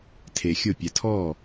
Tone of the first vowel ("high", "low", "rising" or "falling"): low